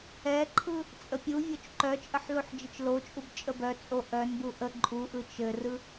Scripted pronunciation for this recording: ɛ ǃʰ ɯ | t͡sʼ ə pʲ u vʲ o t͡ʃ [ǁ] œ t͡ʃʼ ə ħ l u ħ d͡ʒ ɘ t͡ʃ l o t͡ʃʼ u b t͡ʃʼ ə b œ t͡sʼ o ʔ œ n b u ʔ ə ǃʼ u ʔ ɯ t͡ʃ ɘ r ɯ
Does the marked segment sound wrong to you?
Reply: yes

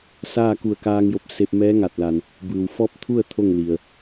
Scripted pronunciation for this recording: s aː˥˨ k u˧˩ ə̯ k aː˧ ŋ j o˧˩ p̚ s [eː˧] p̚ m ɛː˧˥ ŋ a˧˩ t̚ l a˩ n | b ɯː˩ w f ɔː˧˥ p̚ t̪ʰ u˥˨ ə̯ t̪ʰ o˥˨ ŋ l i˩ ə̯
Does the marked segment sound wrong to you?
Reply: yes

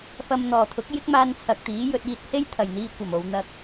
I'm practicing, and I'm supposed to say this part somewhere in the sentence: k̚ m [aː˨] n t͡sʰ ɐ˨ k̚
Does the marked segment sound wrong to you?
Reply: yes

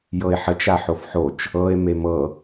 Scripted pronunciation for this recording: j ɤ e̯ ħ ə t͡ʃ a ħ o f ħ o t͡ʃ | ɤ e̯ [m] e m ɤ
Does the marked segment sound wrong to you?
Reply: no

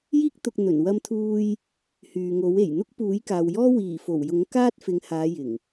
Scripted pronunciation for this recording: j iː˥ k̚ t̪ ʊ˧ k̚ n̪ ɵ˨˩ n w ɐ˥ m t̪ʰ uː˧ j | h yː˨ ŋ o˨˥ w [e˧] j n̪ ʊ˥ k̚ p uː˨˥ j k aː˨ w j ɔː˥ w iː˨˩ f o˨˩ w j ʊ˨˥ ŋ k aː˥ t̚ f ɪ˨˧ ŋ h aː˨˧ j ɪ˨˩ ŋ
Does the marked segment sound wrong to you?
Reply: yes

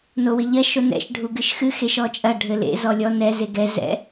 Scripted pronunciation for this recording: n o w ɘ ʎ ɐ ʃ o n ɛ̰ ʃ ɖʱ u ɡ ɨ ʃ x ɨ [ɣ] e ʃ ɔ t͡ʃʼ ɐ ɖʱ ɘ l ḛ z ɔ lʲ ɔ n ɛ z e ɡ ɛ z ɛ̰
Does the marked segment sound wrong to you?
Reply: yes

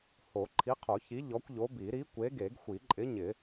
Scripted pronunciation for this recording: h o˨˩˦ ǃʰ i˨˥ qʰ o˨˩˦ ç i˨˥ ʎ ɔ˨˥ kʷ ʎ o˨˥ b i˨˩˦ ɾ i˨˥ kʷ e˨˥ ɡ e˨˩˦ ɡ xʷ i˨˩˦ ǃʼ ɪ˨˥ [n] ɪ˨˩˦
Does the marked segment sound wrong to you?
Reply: yes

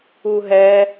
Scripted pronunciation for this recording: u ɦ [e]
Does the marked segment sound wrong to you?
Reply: yes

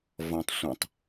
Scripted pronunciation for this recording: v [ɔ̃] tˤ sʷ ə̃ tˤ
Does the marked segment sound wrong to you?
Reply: no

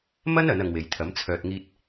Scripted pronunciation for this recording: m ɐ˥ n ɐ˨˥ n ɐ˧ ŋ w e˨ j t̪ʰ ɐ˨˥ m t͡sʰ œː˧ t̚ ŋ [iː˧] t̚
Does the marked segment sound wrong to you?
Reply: yes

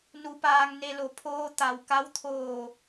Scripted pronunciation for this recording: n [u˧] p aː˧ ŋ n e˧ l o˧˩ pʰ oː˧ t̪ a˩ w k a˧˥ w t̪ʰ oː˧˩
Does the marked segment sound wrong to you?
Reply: no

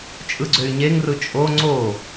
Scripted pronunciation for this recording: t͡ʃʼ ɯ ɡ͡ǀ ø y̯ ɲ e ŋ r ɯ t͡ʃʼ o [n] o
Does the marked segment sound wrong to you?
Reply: yes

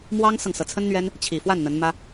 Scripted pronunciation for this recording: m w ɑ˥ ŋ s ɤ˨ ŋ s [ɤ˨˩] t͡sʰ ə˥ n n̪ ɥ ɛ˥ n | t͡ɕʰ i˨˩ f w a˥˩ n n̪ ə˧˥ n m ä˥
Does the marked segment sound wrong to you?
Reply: no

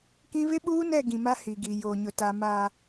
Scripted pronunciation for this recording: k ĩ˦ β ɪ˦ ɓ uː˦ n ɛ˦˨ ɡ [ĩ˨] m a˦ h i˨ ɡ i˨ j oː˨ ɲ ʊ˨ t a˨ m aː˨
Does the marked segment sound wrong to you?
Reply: no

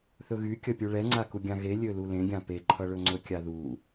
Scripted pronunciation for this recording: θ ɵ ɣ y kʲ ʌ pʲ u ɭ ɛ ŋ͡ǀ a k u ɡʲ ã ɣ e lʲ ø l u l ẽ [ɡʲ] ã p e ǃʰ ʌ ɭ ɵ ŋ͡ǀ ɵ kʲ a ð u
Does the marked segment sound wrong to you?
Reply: no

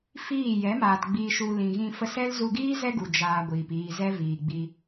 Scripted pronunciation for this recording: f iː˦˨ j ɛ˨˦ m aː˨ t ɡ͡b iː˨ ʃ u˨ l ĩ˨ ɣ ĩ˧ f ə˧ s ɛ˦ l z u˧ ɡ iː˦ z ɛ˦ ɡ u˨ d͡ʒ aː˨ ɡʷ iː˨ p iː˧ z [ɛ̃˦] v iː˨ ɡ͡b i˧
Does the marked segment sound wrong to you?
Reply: yes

